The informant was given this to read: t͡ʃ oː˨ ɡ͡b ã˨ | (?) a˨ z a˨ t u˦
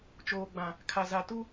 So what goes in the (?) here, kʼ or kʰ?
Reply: kʰ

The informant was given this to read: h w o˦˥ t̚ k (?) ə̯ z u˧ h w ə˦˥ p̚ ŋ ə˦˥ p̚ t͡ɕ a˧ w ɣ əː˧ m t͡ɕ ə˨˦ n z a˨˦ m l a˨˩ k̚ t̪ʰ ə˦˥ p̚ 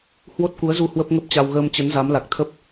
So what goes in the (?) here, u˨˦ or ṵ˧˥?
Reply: u˨˦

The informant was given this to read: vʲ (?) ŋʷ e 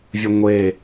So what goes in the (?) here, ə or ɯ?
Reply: ə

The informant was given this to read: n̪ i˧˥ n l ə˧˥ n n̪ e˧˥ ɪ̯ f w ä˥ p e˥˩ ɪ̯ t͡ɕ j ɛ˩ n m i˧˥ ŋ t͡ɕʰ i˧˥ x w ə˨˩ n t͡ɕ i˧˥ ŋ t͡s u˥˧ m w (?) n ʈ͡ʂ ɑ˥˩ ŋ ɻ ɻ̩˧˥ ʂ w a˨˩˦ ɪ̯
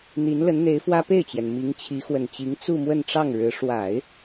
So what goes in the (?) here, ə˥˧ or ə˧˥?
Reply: ə˥˧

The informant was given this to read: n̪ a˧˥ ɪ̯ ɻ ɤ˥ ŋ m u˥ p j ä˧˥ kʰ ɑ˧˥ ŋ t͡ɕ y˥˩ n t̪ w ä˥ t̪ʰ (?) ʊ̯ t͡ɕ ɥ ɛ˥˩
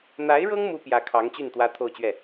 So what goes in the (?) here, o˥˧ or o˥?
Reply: o˥˧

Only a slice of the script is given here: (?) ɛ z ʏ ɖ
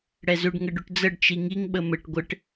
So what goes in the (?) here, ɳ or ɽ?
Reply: ɽ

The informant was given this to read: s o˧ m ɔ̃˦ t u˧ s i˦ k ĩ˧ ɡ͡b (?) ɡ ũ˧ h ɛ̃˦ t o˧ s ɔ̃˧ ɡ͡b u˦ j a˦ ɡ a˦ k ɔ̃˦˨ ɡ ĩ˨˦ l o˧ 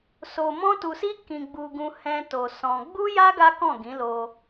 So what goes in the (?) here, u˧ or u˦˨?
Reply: u˧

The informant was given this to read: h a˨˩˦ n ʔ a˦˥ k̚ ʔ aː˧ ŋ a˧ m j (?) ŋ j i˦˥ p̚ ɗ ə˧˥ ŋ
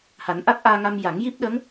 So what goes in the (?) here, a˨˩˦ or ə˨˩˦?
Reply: a˨˩˦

